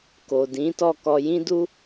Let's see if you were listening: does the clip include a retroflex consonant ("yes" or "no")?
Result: no